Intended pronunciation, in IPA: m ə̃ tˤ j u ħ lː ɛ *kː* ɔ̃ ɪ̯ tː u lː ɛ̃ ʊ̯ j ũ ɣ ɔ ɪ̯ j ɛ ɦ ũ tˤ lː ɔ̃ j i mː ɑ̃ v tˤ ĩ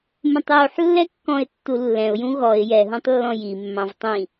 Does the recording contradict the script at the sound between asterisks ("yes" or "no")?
no